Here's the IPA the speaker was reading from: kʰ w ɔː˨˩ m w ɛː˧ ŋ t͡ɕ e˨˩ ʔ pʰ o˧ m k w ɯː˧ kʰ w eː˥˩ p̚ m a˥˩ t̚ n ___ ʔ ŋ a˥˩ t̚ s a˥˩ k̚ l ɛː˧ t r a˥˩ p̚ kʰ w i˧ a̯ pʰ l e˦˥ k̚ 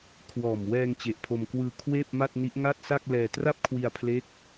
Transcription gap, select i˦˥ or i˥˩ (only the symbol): i˦˥